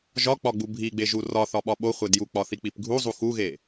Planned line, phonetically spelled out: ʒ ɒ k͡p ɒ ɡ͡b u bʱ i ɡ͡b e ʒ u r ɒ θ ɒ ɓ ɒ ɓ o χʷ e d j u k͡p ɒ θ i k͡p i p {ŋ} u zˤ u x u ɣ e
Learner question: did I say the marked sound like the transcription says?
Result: no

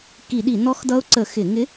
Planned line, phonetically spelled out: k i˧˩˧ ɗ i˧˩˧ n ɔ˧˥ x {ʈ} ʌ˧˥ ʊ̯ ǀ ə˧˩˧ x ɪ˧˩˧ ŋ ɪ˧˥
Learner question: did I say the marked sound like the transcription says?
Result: no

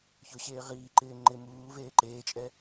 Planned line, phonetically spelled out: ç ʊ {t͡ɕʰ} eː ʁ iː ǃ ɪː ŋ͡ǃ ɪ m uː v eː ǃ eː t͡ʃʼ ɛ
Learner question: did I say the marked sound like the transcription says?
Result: no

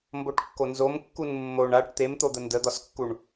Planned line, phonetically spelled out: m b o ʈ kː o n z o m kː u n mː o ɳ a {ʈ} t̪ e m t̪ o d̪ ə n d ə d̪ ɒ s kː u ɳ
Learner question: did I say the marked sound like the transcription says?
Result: yes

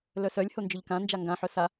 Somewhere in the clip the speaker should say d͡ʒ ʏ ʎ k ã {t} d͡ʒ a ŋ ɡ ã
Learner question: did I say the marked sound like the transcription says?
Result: no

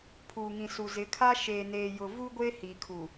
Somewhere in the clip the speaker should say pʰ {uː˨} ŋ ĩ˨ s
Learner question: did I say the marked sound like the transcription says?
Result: yes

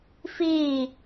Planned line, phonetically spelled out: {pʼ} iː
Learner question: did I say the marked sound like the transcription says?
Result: no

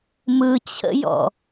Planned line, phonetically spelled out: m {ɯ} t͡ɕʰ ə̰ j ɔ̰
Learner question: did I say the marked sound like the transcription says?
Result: yes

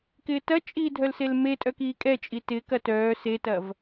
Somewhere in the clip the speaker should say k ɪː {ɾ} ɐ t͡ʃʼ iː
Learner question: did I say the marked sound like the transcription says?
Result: no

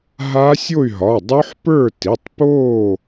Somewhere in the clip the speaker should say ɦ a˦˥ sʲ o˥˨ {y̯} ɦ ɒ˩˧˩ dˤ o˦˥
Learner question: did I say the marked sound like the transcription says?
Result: yes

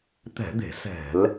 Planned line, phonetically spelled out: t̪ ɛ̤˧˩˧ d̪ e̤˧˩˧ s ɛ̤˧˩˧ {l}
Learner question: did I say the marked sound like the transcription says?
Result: yes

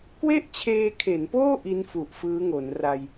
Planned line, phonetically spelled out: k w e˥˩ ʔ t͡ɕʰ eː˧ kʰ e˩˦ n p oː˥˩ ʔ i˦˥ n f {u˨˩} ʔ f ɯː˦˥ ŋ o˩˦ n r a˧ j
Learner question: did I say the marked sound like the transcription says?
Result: yes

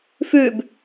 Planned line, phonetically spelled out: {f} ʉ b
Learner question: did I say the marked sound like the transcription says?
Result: yes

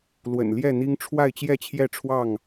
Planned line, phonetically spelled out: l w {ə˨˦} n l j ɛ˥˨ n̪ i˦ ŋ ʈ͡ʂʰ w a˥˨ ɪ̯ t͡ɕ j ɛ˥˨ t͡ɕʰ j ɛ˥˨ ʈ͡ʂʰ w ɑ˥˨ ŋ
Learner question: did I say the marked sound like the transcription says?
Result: no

